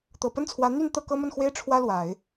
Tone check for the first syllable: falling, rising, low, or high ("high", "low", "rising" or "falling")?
low